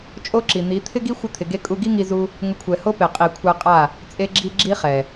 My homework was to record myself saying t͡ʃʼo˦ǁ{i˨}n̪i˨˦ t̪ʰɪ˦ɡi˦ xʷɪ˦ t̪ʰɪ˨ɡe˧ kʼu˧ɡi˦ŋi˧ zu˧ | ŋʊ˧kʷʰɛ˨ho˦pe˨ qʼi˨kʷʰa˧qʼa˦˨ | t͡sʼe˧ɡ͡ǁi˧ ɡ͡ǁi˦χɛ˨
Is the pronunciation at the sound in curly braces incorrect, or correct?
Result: correct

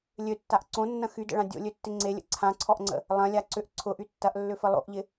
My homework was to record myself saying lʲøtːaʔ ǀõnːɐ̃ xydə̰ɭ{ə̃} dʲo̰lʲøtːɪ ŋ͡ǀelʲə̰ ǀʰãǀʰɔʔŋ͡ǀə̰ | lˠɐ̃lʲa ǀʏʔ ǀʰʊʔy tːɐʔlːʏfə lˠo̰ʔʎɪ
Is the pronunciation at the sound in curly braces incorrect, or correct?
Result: incorrect: ã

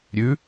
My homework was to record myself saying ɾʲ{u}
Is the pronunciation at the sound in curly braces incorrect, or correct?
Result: incorrect: ʉ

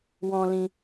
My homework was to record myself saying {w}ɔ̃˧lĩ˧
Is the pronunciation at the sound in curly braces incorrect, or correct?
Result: correct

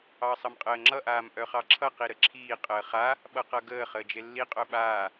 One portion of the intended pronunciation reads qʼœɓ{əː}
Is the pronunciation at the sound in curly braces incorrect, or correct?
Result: incorrect: aː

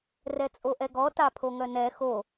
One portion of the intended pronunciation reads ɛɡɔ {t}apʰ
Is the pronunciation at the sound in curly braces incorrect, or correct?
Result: correct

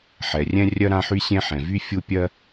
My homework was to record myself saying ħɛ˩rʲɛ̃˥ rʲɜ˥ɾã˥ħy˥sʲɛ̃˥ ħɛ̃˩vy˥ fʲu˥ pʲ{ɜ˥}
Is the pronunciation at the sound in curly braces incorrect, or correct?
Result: correct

